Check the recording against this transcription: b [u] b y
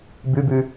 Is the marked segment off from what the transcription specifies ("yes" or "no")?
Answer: yes